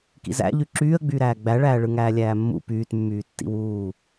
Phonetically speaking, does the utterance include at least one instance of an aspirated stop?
no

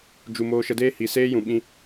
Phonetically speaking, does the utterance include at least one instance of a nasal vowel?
yes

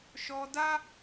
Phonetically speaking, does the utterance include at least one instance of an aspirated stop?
no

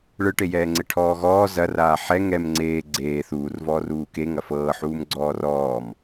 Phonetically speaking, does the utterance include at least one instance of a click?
yes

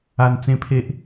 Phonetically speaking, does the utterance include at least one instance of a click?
no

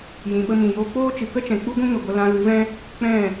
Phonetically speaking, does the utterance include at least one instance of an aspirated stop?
no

